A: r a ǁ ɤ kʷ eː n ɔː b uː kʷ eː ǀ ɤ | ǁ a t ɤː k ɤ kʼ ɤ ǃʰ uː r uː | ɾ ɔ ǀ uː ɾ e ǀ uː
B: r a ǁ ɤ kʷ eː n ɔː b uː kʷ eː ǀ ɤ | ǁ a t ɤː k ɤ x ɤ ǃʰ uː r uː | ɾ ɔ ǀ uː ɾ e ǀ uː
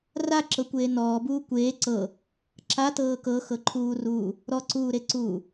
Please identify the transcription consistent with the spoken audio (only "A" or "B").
B